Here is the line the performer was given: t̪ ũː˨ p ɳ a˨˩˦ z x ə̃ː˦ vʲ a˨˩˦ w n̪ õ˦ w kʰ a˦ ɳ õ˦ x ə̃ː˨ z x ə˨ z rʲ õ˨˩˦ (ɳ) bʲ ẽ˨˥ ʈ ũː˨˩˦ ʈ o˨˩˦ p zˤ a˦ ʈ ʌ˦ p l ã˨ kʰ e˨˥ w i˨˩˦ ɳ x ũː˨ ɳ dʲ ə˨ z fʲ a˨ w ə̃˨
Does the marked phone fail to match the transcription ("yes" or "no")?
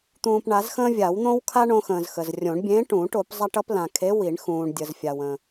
no